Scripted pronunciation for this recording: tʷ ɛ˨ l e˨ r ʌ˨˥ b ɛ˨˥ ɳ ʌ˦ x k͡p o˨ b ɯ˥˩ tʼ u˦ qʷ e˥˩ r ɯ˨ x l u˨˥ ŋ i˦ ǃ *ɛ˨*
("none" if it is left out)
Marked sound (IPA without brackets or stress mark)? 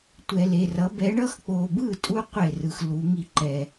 ɛ˨